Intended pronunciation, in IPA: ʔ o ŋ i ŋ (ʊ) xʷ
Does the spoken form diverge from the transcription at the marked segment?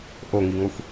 yes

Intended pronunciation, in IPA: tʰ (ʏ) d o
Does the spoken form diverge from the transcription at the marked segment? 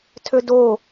no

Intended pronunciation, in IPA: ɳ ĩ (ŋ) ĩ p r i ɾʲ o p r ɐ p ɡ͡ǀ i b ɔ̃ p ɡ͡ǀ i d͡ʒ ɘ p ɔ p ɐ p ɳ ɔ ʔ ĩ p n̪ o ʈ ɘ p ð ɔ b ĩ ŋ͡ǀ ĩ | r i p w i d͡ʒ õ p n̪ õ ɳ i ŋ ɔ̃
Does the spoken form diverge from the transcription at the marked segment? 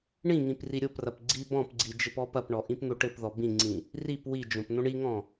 no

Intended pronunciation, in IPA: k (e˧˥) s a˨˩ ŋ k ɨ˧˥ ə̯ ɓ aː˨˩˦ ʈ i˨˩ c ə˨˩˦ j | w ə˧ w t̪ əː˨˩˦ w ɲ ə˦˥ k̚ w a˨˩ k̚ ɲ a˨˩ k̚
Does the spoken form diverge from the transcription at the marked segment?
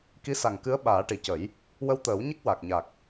yes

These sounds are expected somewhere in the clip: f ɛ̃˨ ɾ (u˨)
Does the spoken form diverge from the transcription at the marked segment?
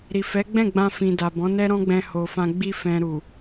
no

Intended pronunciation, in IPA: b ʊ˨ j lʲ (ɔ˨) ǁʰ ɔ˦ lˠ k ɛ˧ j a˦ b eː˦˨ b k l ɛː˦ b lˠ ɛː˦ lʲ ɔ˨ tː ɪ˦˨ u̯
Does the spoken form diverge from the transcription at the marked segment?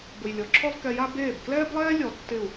no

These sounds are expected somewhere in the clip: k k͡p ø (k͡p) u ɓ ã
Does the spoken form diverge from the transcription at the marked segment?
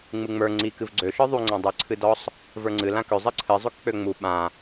yes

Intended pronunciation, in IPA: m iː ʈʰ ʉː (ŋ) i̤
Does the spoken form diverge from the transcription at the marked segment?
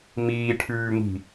no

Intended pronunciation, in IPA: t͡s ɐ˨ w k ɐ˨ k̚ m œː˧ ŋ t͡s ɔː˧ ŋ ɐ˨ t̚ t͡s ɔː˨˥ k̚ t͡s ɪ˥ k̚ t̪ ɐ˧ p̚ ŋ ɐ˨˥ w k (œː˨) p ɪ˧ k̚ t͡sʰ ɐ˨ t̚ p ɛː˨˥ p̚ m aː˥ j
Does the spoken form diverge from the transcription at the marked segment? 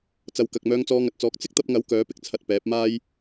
yes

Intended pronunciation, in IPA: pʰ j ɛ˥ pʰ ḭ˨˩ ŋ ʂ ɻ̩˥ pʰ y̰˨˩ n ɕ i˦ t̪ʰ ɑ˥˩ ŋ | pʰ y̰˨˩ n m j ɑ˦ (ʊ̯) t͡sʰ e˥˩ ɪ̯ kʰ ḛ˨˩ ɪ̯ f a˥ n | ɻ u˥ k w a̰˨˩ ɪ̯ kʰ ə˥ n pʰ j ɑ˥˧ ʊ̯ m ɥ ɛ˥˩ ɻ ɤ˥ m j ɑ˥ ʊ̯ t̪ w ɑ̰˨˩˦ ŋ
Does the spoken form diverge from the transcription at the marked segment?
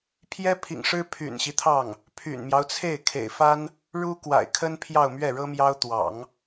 no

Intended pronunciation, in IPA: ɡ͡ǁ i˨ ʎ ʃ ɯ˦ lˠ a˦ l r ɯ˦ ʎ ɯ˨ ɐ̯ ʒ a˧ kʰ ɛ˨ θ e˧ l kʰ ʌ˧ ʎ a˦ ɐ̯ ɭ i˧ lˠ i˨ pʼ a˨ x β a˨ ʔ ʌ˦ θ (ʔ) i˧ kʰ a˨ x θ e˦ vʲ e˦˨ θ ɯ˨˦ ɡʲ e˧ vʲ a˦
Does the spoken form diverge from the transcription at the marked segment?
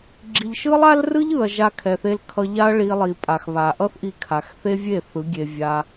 no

